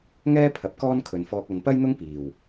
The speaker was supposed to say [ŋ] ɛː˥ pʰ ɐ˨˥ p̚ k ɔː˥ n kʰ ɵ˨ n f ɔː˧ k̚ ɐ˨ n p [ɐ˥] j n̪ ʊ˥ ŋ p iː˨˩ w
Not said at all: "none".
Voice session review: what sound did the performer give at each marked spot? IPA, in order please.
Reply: ŋ, ɐ˥

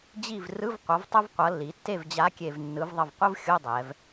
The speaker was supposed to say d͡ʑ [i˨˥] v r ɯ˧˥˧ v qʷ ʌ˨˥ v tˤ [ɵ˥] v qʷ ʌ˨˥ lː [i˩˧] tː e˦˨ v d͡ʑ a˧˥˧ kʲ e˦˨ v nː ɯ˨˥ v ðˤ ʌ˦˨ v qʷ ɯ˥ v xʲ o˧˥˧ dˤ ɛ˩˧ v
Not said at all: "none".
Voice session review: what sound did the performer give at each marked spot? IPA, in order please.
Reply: i˦˨, o˥, i˩˧

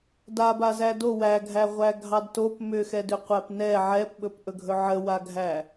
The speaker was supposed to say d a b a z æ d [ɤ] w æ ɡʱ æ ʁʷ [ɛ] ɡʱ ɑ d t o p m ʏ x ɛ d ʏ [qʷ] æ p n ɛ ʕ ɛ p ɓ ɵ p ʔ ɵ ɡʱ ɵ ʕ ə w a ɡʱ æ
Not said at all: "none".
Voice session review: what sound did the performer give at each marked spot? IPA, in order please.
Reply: o, æ, qʷ

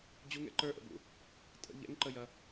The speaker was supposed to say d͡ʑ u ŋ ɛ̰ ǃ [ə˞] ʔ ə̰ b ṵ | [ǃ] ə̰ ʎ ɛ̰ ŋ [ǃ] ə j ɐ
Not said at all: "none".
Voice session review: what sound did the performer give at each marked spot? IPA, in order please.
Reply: ə˞, tʼ, ǃ

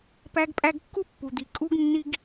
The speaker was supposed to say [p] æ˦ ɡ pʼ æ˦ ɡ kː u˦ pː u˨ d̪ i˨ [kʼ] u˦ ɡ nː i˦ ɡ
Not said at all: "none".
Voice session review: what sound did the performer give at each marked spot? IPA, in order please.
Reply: p, kʼ

